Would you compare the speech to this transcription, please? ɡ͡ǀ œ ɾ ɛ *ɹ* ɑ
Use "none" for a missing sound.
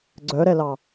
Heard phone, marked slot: l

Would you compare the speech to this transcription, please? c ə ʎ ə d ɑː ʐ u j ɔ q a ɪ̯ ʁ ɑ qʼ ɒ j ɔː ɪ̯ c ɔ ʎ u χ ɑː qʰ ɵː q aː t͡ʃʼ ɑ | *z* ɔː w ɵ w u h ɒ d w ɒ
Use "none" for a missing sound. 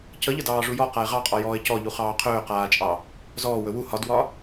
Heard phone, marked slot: z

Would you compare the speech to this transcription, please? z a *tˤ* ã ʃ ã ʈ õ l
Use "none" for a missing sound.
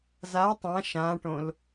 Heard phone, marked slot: tˤ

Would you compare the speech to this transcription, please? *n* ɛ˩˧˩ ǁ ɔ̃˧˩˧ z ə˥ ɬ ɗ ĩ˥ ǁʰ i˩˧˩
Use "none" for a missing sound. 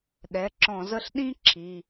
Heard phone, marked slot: ɗ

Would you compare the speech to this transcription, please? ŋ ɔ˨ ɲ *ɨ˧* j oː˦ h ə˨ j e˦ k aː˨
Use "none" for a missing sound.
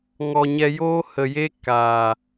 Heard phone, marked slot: ɛ˧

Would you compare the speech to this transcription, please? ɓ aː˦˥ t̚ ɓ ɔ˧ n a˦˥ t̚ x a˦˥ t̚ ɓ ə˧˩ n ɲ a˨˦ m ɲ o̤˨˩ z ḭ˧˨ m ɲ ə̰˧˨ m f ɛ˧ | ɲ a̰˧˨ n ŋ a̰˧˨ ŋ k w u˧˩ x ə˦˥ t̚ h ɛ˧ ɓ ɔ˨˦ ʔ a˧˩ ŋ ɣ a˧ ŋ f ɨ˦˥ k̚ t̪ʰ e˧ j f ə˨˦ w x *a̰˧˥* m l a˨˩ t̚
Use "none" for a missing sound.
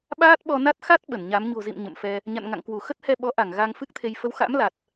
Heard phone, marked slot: a̰˧˥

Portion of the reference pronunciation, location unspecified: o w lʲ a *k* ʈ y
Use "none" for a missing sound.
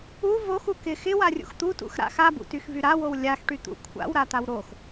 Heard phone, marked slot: x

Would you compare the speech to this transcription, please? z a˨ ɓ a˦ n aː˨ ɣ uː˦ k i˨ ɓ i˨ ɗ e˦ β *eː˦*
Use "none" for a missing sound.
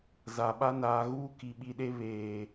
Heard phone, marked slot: eː˨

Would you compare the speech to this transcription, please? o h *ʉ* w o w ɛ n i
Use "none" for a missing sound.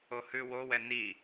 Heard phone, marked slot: ʉ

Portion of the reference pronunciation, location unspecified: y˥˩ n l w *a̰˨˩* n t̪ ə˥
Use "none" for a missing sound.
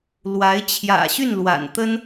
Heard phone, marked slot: a̰˨˩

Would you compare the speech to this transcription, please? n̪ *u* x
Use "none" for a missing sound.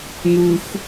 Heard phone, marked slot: u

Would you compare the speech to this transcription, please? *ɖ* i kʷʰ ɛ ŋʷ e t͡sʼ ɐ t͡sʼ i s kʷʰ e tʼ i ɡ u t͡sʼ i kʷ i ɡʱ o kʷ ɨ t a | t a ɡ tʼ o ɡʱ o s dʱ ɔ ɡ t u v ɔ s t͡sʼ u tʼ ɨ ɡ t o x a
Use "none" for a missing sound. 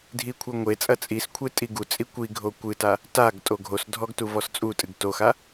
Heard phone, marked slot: dʱ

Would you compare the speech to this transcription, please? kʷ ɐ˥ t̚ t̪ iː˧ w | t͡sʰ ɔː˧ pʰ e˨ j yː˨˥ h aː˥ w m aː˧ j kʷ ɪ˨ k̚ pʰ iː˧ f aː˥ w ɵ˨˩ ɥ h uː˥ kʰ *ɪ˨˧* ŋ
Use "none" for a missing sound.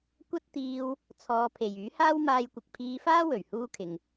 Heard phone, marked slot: ɪ˨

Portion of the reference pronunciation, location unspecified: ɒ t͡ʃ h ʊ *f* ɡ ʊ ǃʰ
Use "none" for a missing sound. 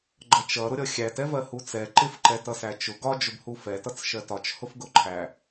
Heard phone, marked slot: f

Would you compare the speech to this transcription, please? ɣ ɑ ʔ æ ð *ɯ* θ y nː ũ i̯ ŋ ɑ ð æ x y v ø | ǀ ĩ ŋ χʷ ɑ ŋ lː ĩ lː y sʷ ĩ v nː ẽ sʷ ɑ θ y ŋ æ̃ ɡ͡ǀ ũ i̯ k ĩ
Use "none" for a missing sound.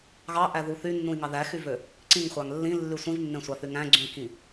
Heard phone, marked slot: u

